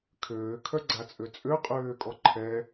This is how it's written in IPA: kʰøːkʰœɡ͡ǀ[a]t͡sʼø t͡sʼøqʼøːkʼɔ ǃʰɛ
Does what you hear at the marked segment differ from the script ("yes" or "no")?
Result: no